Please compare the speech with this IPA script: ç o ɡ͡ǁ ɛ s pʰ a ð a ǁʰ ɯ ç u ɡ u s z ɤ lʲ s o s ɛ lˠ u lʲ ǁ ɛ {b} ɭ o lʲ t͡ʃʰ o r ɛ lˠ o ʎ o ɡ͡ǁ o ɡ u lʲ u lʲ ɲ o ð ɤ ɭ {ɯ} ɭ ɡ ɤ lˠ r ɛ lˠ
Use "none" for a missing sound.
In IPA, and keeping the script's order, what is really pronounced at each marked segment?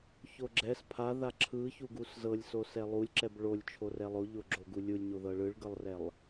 b, ɯ

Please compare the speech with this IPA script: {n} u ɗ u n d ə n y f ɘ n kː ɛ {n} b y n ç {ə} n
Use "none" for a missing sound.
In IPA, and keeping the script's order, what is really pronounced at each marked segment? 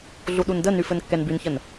ɮ, n, ə

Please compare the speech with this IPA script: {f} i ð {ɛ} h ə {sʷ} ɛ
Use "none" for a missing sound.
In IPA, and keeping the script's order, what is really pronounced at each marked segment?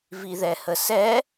v, ɛ, s

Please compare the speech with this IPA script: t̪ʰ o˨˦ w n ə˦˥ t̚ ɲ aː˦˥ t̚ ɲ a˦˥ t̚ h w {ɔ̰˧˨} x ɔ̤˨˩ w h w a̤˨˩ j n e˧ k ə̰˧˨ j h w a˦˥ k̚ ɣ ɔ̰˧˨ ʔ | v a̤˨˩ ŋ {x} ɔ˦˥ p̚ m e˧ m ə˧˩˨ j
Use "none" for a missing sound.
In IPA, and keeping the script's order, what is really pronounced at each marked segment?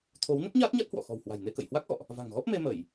ɔ̰˧˨, ɣ

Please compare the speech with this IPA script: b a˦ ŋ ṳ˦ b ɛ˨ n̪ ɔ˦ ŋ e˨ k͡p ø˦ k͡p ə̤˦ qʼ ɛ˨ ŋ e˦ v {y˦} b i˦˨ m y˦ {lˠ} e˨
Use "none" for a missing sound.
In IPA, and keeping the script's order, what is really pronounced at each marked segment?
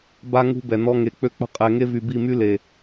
y˨, l

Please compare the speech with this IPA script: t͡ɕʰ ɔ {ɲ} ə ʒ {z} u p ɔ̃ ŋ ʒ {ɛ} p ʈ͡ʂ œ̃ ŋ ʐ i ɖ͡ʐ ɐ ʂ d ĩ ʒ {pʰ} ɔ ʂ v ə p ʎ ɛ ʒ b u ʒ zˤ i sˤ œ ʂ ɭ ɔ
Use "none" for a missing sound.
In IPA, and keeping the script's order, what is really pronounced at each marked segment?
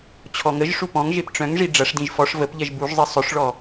ŋ, ʂ, e, f

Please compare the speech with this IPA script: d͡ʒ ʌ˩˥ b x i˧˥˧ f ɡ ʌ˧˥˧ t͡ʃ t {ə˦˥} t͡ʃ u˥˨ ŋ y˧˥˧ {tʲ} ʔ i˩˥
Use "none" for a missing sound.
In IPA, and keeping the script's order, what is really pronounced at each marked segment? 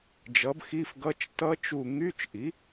ʌ˦˥, t͡ʃ

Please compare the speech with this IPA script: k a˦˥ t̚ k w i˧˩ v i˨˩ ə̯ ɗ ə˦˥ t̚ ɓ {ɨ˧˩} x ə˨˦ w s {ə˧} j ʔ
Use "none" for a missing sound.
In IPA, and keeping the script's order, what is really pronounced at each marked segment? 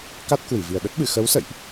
ɨ˧˩, ə̰˧˨

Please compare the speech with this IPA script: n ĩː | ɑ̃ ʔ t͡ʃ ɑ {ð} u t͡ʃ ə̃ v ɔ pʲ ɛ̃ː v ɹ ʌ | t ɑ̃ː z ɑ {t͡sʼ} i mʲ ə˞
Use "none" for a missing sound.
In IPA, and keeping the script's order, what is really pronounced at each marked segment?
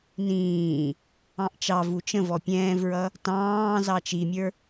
v, t͡ʃ

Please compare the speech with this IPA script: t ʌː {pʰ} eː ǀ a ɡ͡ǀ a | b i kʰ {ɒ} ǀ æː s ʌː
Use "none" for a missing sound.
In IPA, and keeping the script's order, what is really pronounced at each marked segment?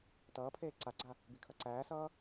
pʰ, ʌ

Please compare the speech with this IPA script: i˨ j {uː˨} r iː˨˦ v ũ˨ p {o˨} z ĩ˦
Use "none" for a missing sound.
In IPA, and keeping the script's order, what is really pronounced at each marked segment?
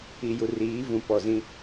u˨, ɔ˨

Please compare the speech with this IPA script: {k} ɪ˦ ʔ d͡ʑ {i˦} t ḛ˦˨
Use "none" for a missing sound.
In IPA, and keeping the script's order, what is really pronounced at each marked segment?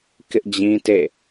k, ĩ˦

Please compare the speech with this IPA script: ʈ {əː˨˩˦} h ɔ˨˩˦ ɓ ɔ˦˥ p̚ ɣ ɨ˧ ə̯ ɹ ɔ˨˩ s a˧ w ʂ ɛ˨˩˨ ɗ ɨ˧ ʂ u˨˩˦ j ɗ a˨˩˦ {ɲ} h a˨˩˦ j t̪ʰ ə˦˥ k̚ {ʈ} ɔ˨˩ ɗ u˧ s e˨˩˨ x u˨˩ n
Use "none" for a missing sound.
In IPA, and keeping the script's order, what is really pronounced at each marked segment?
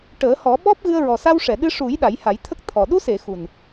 əː˨˩˦, j, t̪ʰ

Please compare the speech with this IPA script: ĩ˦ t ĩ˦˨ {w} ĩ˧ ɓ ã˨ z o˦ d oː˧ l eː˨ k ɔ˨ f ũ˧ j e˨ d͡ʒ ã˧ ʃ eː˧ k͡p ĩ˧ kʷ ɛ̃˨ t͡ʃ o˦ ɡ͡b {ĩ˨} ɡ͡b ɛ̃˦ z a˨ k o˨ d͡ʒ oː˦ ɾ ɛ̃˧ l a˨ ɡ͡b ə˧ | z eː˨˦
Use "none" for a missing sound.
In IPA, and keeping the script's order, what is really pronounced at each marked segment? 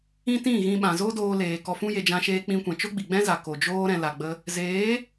ɣ, i˨

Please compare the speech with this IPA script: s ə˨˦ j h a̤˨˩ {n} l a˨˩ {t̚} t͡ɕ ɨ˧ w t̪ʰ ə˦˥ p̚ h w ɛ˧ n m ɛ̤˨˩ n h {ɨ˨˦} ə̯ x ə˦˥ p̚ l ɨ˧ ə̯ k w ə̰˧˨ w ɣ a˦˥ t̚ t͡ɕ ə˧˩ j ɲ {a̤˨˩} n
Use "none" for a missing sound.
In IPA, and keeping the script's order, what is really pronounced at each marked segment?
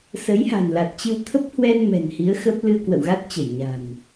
n, t̚, i˨˦, a̤˨˩

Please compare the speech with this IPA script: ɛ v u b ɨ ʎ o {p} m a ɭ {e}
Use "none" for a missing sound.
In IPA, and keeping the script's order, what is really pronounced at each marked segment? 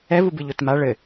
t, ɘ

